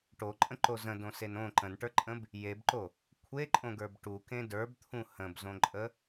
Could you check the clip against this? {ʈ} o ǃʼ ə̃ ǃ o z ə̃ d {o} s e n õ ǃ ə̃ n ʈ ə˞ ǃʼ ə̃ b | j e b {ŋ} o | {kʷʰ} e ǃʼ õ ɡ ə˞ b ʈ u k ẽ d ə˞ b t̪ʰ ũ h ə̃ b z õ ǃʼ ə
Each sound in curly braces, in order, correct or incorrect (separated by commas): correct, incorrect, incorrect, correct